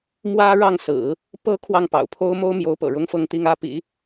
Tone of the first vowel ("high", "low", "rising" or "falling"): high